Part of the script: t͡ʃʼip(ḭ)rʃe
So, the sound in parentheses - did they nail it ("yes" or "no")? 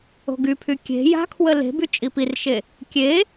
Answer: no